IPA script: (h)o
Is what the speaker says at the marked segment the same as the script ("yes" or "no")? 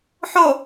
no